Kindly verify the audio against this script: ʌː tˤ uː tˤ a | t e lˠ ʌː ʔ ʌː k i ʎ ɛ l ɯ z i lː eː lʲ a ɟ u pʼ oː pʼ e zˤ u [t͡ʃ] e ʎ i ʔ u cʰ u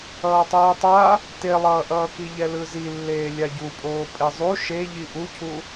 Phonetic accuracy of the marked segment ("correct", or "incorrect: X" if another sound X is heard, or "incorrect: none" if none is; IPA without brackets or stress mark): incorrect: ʃ